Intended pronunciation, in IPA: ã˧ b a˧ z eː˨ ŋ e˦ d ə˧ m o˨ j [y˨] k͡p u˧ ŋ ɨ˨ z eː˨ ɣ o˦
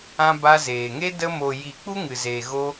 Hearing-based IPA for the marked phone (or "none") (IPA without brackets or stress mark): i˨